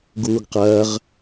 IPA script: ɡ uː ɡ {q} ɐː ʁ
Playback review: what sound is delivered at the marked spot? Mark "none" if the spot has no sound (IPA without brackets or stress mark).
q